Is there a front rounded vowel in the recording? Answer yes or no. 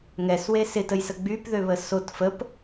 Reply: yes